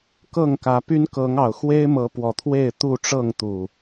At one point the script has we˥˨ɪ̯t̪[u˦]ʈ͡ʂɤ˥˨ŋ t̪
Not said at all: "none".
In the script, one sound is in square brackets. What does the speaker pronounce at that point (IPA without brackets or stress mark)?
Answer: u˥˨